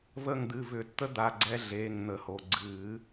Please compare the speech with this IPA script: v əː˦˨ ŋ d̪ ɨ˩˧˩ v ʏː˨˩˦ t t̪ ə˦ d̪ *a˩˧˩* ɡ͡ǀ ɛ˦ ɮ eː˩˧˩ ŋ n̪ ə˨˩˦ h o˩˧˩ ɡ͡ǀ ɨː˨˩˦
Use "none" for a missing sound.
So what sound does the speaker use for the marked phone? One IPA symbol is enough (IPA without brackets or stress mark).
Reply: a˩˧˩